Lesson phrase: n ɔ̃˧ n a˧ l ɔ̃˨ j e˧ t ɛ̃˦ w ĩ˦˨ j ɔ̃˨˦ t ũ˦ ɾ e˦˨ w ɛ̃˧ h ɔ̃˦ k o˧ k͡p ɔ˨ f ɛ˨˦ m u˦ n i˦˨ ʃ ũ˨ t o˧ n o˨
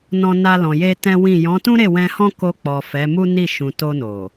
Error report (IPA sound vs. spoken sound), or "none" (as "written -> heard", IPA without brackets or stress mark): none